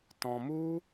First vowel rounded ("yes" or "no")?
yes